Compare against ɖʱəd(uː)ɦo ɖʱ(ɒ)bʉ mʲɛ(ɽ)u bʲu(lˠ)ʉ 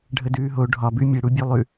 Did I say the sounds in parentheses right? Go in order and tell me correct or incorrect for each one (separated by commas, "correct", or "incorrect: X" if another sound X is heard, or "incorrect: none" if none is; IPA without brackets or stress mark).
incorrect: ʉː, correct, correct, correct